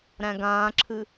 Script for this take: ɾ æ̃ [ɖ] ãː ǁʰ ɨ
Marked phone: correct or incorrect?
incorrect: ɡ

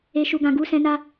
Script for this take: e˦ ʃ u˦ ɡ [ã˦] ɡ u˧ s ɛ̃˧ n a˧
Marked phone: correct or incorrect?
correct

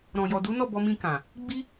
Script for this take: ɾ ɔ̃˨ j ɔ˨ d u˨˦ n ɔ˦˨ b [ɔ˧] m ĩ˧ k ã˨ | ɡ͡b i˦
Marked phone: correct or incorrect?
correct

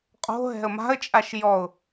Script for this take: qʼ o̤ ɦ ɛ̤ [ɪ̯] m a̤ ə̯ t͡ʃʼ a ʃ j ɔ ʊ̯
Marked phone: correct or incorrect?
incorrect: ə̯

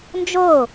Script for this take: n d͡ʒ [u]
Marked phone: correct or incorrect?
incorrect: o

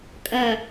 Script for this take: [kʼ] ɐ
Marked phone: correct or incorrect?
correct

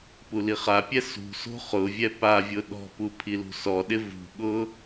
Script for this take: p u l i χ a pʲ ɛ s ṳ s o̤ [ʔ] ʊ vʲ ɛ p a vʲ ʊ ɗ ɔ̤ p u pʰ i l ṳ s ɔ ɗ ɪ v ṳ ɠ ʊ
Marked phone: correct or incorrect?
incorrect: χ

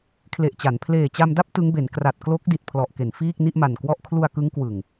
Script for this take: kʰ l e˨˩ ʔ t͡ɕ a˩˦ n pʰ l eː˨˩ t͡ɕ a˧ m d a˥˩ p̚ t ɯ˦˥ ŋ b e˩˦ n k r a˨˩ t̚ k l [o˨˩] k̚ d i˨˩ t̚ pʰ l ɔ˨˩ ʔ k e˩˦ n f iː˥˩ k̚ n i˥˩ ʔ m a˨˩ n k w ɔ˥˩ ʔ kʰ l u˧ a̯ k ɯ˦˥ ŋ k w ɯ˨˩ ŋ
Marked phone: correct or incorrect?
incorrect: o˦˥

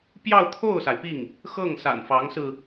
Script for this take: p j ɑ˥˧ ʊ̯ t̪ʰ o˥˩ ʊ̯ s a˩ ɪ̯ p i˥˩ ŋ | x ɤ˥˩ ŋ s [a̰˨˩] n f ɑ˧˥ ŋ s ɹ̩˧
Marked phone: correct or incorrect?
correct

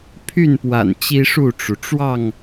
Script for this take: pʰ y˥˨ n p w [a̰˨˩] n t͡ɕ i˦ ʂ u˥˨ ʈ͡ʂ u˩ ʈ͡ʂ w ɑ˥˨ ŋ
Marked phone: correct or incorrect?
correct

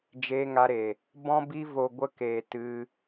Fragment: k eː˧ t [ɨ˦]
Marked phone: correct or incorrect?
correct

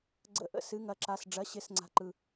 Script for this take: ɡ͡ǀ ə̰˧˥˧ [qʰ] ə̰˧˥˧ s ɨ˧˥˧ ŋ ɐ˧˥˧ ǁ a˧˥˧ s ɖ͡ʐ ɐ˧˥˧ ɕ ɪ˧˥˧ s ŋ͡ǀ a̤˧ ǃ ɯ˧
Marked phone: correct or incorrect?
incorrect: ʔ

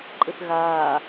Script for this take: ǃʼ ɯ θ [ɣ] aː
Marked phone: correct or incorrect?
correct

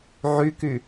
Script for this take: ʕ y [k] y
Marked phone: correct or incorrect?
correct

